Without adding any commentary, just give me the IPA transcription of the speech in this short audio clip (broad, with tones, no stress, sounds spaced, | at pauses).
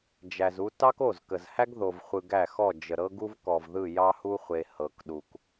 d͡ʒ æ˨ z u˦ t ɑ˦ k o˦˨ z k ə˨ z h æ˦ ɡ ð o˨ v χʷ ɯ˨ ɡ æ˦˨ x ɔ˦˨ d͡ʒ ə˨ ɾ ɤ˦ ɡ u˦ v k ɔ˨ v ð ɯ˦˨ j ɑ˦ h u˦ χʷ e˨ h ɤ˨ k ɗ u˨ k